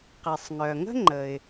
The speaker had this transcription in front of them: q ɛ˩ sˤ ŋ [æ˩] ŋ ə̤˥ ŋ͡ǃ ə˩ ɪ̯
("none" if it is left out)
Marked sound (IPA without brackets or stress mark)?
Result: œ˩